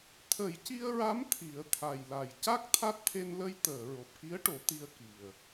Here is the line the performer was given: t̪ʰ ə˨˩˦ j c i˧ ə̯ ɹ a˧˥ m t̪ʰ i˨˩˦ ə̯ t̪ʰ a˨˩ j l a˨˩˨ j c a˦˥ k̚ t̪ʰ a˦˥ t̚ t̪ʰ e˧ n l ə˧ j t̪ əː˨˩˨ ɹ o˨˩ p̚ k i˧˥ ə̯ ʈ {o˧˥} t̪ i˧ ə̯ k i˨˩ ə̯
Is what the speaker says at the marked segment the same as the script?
no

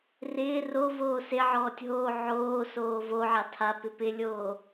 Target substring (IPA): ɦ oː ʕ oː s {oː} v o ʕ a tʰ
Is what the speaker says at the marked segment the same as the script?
yes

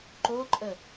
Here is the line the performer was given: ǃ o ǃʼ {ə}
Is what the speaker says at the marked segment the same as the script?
yes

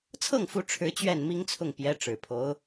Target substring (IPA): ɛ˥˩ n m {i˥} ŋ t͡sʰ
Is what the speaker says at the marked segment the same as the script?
yes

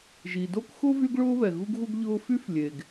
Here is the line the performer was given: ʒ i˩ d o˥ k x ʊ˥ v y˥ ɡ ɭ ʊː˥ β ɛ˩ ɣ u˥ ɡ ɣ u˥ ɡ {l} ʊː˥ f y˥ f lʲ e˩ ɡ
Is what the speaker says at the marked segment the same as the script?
no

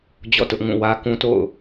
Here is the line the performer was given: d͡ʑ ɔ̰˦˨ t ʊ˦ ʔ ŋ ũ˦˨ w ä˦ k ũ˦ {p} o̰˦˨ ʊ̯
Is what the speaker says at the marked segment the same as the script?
no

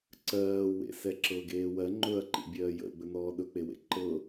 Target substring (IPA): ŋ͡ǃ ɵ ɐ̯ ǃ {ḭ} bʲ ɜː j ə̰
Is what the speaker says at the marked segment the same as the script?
yes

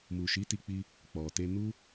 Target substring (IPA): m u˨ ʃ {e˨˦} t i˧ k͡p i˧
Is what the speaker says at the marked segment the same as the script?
no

